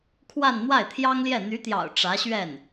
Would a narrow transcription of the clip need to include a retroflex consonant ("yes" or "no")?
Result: yes